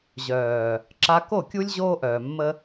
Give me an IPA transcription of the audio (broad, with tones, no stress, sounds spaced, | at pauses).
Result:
ʑ œː˨ | ǁ a˧ k o˦˨ kʲ u˦ lʲ ʑ oː˦ ʔ œː˨ mː ə˦